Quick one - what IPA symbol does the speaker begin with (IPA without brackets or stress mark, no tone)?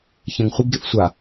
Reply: ç